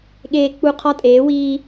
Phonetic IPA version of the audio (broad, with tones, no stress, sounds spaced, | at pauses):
ɠ eː˦˨ k͡p u˦˨ qʰ ɒ˦ tʼ eː˩˥ w iː˦